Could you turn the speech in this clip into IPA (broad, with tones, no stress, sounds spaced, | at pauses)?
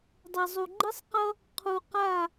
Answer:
dˤ ɛ˨ zˤ u˨ ɡ͡ǃ i˦ sˤ q ʌ˦ | qʰ u˨ q a˦˨